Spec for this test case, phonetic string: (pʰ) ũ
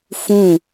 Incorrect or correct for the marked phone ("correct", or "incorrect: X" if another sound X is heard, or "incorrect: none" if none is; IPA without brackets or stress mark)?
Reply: incorrect: f